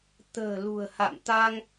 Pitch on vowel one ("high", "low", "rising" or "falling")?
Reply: low